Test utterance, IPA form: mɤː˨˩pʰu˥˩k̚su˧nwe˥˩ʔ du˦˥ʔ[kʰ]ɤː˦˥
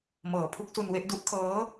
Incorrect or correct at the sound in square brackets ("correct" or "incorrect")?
correct